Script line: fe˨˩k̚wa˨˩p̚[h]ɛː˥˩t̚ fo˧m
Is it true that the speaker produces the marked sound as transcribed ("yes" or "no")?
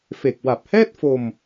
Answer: yes